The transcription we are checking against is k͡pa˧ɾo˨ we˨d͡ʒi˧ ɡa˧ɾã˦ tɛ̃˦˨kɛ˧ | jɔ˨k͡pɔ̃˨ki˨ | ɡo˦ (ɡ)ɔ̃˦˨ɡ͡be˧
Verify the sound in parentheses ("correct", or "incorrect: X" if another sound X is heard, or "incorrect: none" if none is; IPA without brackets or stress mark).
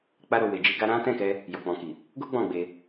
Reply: incorrect: ɡ͡b